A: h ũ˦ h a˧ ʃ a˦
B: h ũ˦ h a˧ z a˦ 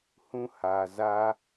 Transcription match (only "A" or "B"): B